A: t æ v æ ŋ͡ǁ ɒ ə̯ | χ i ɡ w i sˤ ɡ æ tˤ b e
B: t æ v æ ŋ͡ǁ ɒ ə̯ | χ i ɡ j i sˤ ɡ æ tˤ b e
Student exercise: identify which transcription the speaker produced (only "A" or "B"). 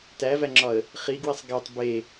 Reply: A